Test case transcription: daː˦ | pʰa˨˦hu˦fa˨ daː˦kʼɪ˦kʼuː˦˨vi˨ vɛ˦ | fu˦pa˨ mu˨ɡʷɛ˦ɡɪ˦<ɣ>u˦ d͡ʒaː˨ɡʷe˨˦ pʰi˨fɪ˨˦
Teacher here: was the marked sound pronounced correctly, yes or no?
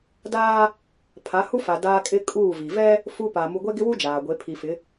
no